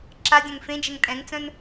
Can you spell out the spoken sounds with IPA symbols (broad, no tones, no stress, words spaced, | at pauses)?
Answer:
ǁadʲœ̃ŋ fẽd͡ʒɛŋ tʼɛ̃ŋt͡sœ̃n